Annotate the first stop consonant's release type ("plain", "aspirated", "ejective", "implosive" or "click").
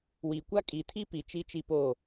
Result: plain